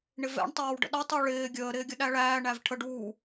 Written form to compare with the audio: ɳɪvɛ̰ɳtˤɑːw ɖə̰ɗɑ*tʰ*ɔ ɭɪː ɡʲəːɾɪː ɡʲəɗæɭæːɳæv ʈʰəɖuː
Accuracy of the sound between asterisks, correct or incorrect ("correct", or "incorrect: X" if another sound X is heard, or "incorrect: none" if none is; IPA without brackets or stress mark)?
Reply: incorrect: tˤ